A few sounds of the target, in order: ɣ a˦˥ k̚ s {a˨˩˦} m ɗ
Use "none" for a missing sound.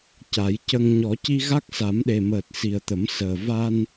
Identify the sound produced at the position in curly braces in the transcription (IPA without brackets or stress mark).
a˨˩˦